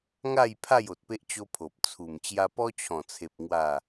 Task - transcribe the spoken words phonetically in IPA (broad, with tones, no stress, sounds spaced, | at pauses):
ŋ a˥˧ j pʰ a˥˧ j o˨ t̚ p e˦ ʔ t͡ɕ o˦ pʰ o˨ p̚ t͡sʰ u˨˩ m t͡ɕ j a˧ p ɔ˦ t͡ɕʰ ɔ̃˨˩ t͡sʰ e˨ p̚ ŋ w a˥˧